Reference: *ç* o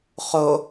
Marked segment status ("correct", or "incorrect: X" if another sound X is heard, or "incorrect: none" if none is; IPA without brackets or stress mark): incorrect: χ